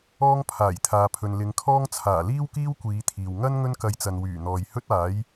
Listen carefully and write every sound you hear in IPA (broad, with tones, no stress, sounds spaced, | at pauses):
ɔː˥ ŋ pʰ aː˨˩ j t̪ʰ aː˨ pʰ ɵ˨ n l ɪ˨˧ ŋ kʰ ɔː˥ ŋ t͡sʰ aː˨˩ l iː˥ w k iː˥ w kʷ iː˨˧ t̪ʰ iː˨ w ŋ ɐ˥ n ŋ ɵ˥ n k ɐ˧ j t͡s ɐ˨ n w yː˨˩ n̪ ɔː˨ j h ɵ˥ t̚ aː˨˥ j